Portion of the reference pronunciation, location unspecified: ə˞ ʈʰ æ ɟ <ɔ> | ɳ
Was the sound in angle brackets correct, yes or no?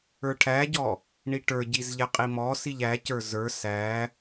yes